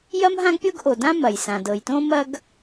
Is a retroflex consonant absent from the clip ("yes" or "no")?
yes